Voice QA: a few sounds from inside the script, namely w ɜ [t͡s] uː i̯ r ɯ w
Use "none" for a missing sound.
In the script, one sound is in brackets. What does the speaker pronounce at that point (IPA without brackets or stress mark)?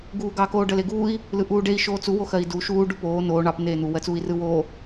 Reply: t͡s